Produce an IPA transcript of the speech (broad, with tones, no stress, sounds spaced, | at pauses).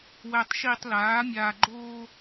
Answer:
w æ˨ tˤ ʃ iː˨ tˤ l aː˨˦ mʲ aː˨ ɡ͡ǃ oː˦